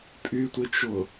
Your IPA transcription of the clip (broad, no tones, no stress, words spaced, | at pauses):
pʼytʷɪt͡ʃʊ